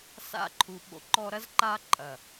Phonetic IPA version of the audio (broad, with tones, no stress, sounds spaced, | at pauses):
s a̰˦ ǃʰ u˨ ɓ o̰˧ ǃ ɔ˧ ɾ ɐ˦ z ǃ aː˦ ǃʼ ɐ˨